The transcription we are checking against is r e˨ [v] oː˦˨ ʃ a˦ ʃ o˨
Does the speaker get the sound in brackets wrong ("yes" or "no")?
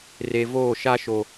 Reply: no